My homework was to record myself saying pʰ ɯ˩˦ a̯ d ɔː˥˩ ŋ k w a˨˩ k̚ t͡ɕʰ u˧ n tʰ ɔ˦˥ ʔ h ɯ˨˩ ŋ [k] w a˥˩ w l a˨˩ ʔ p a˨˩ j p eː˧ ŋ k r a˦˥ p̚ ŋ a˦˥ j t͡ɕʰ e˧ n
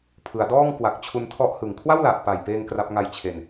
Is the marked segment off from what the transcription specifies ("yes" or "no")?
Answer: yes